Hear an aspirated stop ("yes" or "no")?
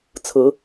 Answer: yes